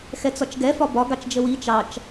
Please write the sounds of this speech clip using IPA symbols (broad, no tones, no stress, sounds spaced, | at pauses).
x ɛ t͡s ɒ t͡ʃ ɡ ɛ f ɒ b ɒ ɡ ɑ t͡ʃ d͡ʒ ə w i t͡ʃ ɑ t͡ʃ